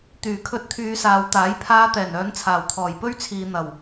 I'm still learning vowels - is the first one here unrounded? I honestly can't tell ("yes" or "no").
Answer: no